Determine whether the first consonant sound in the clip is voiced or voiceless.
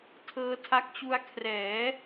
voiceless